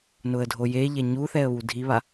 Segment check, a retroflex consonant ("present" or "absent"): absent